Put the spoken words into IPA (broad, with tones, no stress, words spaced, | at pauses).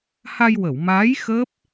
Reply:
ha˧jwə˨˩˨w maː˧˥j xəː˦˥p̚